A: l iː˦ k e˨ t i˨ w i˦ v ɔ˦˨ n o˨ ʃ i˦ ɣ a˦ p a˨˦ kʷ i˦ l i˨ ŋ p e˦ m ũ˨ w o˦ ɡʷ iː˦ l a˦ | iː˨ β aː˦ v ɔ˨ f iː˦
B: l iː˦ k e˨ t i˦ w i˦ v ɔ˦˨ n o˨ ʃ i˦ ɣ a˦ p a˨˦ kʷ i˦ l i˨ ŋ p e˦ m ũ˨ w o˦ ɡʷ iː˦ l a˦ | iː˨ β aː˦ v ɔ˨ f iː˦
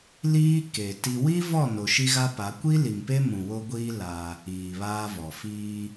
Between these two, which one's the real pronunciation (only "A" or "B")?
B